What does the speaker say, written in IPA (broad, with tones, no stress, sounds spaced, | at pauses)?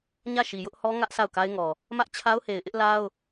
ɲ ä˦˨ ʃ i˨ j ʊ˦ ʔ h ɔ˦ ŋ ä˦ ʔ sʰ a˦˨ ʊ̯ k a˦ ɪ̯ ŋ ɔ˨ | m ä˦ ʔ t͡ɕʰ a˦ ʊ̯ h e˨ ɪ̯ ʔ ɪ˦ ʔ l a˦ ʊ̯